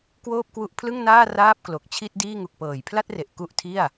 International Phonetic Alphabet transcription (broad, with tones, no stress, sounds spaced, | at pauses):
k w oː˥˩ p̚ k w u˦˥ ʔ pʰ l ɯ˥˩ ŋ n aː˥˩ r aː˥˩ p̚ k l o˨˩ k̚ t͡ɕʰ i˥˩ t̚ d iː˥˩ ŋ u˨˩ k̚ p ɤː˨˩ j pʰ l a˥˩ t̚ r e˨˩ ʔ k u˥˩ ʔ tʰ i˥˩ a̯